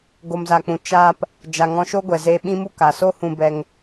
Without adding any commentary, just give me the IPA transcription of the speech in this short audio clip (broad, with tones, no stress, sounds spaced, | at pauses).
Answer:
ɡ o˨ m z a˨ k͡p ũ˨ t͡ʃ aː˧ p | d͡ʒ a˨ ŋ ɔ̃˧ ʃ o˦ ɡʷ ɛ˨ z eː˧ ɓ ĩ˦ m u˦ k a˨ s o˦ h ũ˧ b ɛ˧ ŋ